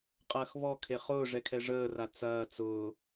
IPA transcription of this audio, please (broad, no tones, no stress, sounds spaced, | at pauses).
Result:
qʼ ɐː x β ɔ kʰ e χ ʊː ʐ ɛ kʰ ɛ ʐ əː r a t͡s ɐː t͡s ʊː